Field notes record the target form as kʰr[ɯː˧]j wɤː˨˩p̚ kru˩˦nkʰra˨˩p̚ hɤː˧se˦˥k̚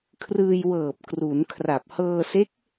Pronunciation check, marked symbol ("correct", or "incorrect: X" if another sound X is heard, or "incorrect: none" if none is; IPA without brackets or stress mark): correct